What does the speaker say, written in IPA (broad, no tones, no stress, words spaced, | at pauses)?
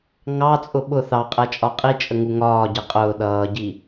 ŋɑt͡sʼʊ ɓʊ θɑqʼæt͡ʃʼɒ qʼit͡ʃʼəŋu ŋɒːɟɪ qʼʊː ɗʌːɟi